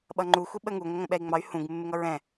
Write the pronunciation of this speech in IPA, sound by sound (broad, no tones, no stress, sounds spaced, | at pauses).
ɓ ʌ ŋ͡ǃ u xʷ i ɓ ə ŋ u ŋʷ ə ŋʷ ə̃ ɓ ɛ i̯ ŋ͡m ɑ y̯ h ũ ɡ mː ɪ ŋ ʌ ɹ ɛ̃